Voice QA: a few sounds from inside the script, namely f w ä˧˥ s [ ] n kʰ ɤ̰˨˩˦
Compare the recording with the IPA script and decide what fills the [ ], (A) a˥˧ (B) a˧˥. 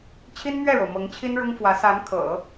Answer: B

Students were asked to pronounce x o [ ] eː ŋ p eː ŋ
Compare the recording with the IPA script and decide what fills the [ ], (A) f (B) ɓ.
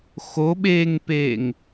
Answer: B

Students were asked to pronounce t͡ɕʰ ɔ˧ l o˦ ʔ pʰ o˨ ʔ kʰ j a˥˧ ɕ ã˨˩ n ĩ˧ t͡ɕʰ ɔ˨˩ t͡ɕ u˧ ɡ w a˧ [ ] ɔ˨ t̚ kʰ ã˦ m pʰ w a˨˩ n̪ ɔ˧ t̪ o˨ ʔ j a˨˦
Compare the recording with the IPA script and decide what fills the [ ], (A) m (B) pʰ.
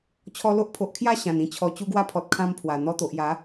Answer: B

